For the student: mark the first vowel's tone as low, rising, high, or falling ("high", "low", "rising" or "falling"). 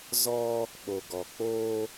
high